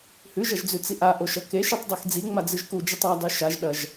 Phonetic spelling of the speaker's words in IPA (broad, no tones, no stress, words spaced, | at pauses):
hʉʒɐʒd͡zʉt͡si ʔaʔoʃɐ keʃitˤdˤex d͡ziŋ͡mad͡zɨʒ kud͡ʒɨtˤ adˤʉ ʃaʒɗɐʒ